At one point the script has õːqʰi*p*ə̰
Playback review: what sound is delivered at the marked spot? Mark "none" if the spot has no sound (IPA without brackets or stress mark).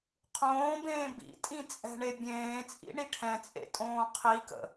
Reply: k